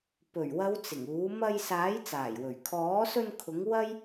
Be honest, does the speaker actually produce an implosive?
no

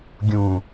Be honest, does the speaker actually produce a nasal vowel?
yes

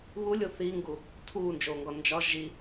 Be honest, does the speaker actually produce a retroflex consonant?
no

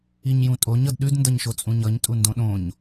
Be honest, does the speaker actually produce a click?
no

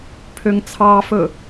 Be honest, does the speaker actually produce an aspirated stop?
yes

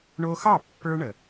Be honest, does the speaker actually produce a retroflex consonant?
yes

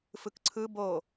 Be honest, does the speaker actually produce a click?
yes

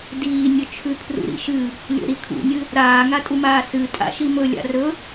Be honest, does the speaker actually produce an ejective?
yes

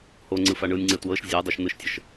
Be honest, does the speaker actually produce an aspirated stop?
no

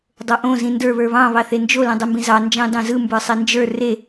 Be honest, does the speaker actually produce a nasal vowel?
yes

